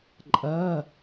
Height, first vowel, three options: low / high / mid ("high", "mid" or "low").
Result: low